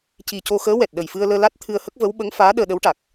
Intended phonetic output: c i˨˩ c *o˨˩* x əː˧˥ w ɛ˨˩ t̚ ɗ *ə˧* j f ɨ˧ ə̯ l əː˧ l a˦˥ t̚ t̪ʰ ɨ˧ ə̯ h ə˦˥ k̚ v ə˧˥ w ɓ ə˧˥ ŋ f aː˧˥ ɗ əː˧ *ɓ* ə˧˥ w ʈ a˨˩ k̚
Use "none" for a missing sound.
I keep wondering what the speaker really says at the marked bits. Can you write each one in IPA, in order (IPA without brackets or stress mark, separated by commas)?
o˧, ə˨˩, ɗ